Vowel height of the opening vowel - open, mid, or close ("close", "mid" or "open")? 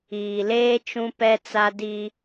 close